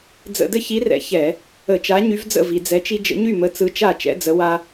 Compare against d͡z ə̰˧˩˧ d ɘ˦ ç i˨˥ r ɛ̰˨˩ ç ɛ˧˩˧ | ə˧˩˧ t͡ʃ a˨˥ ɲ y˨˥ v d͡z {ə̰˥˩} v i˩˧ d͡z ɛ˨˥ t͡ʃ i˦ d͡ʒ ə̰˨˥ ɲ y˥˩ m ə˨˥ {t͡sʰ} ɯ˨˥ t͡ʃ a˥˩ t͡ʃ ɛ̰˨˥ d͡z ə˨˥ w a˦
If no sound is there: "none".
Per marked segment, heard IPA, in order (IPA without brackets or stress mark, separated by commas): ə̰˥˩, t͡s